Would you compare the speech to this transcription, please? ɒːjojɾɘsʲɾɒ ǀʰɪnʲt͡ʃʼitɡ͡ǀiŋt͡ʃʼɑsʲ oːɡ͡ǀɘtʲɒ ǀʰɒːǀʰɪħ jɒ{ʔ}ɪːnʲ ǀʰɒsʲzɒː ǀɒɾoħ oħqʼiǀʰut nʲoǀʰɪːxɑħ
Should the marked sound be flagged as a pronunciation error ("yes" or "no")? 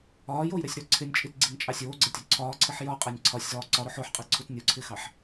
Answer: yes